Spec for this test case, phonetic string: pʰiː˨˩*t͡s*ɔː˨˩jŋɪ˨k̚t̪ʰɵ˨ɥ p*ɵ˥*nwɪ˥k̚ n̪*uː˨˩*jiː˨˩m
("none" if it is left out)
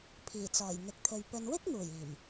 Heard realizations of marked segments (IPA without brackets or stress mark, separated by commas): t͡s, ɵ˨, uː˨˩